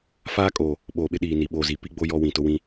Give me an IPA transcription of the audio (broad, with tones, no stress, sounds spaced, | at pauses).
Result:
f aː˦ kʼ oː˨ | ɓ oː˨ ɓ ɪ˦ ɗ iː˨ n i˨ ɓ oː˨ z i˨ p i˦ ɡ͡b o˦ j ɔ˦ w ĩ˨ t ʊ˦ w ĩ˦